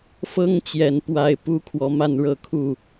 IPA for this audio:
f ɤ˦ ŋ t͡ɕ j ɛ˨˩ n p w a˨˦ ɪ̯ p u˦ kʰ w ɔ˨˦ m a˥˨ n ɻ ɤ˥˨ kʰ u˥˨

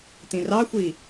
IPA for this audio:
t ĩ r ɑ xʷ i

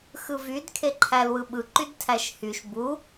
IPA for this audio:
x ɯ v y d kʰ e ǃʰ æ l w ɯ ɓ ɯ ǃ y d tʰ æ ʃ h y ʃ b u

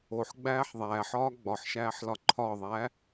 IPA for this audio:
o ħ ɡ͡b æː ħ ðˤ æː ħ ɒː ɡ͡b ɒ ħ ʃ æː ħ l ɒ ǃʰ ɒ ðˤ æː

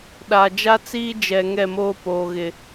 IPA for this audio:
ɗ a˨ d͡ʒ a˦ t͡s iː˦ d͡ʒ ɛ˨ ŋ ɛ˦˨ m oː˦ p oː˨ ɣ ɪ˨

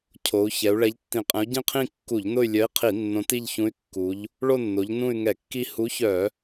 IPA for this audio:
cʰ o˩˧ u̯ ç ɛ˩˧ u̯ ɭ ɛ˨˥ ʎ tː ĩ˧˩˧ qʼ ɛ̃˨˥ u̯ ɟ ĩ˦˨ qʰ ĩ˦˨ kː u˧˩˧ ʎ n ʊ˦˨ y̯ lʲ œ˨˥ i̯ qʰ i˧˩˧ nː õ˨˥ t i˦˨ ʎ ç ũ˨˥ y̯ kː u˩˧ ʎ | ɭ o˦˨ nː o˩˧ ʎ n ũ˦˨ y̯ ŋ ɛ˧˩˧ kː i˦˨ h u˨˥ ç œ˧˩˧

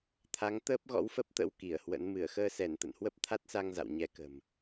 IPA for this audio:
t̪ʰ a˨˦ ŋ t̪ əː˦˥ p̚ ɣ ɔ̰˧˥ w f ə˦˥ p̚ t̪ ə̰˧˥ w k i˧˩ ə̯ h w ə̰˧˥ n m ɨ˧˩ ə̯ x əː˧ s ɛ˧˩ n t̪ ə̰˧˨ n h w ə˦˥ p̚ t̪ʰ a˦˥ t̚ s a˧ ŋ z a̰˧˨ w ɲ ɛ˨˦ k ə̤˨˩ m

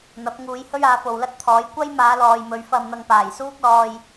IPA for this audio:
n̪ ɐ˨˥ p̚ ŋ uː˨˧ j h ɵ˥ ɥ aː˨˧ f o˨ w l ɐ˥ t̚ t̪ʰ ɔː˨˥ j kʷ ɐ˥ j m aː˨˧ l ɔː˨ j m ɵ˨˧ ɥ f ɐ˧ m n̪ ɐ˧ ŋ p aː˨˩ j s uː˥ k̚ l ɔː˧ j

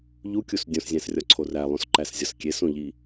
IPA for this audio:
ʎ u kʲ u s dʲ õ s zʲ æ̃ s rʲ ɒ ǀʰ o r æ lˠ õ s ǃ æ s zʲ ɒ s kʲ e s õ ʎ i

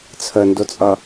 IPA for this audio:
t͡sʰ ə n d ʊ t͡sʼ ʌ

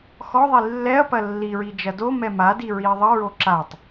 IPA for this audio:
x ɔ ðˤ i lː ɛ ɐ̯ p ɐ lː i ɹ i d͡ʒ ɐ d o m ɛ m a d i ɹ i ɐ̯ ðˤ ə ɹ o ǁ a tˤ

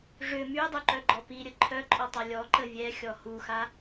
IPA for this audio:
ʐ ʏ m y dˤ u ǃ œ ɡ͡ǃ ɔ p i ɾʲ ə ǃʰ œ ǃʼ ɔ tˤ a lʲ ɔ ǃ ə vʲ ɛ xʲ ɔ h u x a

